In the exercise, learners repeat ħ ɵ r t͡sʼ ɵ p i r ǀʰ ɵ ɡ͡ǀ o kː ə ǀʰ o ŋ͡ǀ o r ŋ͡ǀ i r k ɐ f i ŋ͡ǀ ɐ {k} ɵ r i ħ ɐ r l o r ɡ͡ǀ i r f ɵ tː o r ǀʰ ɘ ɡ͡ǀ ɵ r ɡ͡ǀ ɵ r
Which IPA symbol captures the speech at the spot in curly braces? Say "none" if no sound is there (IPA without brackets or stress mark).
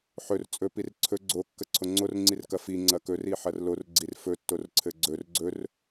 k